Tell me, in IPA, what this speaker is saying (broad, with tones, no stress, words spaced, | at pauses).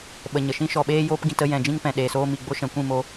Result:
ɓə˨ɲə˨ʃĩ˦ ʃɔ˨ɓeː˧ joː˦pɡĩ˧t ə˧jɛ̃˨d͡ʒĩ˧ŋ pɛ̃˨ɗeː˨soː˧mi˨ ɡ͡bo˦ ʃɛ̃˨kʷĩ˦˨mo˧